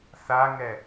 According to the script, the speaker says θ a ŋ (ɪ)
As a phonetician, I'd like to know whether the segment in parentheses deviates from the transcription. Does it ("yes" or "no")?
yes